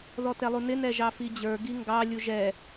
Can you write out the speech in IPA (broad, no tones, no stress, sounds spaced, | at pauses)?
ð ɔ t ɛ lˠ u n ɪ n ɛ ʒ ɑ f i d͡ʑ ə˞ ɡ i ŋ ɡ ɑ lʲ u ʒ ɛ